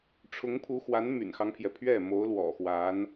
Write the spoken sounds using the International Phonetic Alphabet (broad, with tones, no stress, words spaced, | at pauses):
ʈ͡ʂʰʊ˧˥ŋpʰu˧˥xwa˧˥n my̰˨˩nxɑ˦ŋpʰjɛ˩ pʰɥɛ˥˩mo˧˥ʊ̯ lwɔ̰˨˩xwa˧˥n